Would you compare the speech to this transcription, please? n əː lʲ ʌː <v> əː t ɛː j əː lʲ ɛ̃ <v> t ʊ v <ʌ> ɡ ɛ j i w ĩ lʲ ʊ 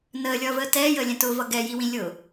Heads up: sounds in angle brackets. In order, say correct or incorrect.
correct, incorrect: none, correct

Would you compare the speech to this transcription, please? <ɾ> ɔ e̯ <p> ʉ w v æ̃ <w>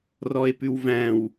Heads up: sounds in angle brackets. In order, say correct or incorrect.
incorrect: r, correct, correct

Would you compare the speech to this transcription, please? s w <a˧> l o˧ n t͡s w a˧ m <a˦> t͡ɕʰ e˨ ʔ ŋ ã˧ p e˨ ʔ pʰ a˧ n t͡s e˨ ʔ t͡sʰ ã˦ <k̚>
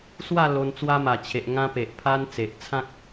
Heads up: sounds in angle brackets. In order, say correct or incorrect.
incorrect: a˥˧, incorrect: a˨˩, correct

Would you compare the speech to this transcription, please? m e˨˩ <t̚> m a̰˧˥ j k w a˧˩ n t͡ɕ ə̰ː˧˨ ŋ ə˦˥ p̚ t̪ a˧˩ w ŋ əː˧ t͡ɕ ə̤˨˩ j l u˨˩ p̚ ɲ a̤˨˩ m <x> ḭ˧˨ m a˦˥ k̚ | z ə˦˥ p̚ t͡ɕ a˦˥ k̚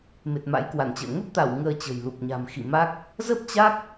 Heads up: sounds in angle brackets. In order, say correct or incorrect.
correct, correct

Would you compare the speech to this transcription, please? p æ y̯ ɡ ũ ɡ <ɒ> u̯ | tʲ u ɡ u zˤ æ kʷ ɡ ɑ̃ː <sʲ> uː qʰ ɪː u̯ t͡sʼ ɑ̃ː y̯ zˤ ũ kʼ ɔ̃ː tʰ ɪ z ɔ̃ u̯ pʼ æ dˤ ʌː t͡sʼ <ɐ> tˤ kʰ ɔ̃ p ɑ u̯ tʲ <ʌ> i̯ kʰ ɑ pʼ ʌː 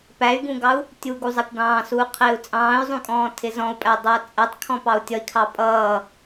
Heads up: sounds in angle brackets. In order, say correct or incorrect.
incorrect: ɑ, incorrect: s, incorrect: æ, correct

